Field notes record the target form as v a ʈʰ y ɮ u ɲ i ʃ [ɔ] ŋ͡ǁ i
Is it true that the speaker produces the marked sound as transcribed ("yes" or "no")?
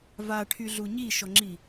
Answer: yes